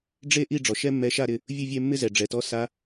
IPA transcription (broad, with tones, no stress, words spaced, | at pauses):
ɖ͡ʐe˥ ʔi˥˨ɖ͡ʐɔ˩ ʃɛ˥mːɛ˧˥ ʃa˥˨ɾɪ˩˧˩ | vʲʊ˥˨vʲɛ˥˨mːɪ˥zɛ˩ ɖ͡ʐɛ˩tɔ˧˥ sa˧˥